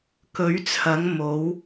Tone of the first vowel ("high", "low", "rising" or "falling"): rising